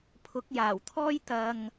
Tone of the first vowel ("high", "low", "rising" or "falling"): rising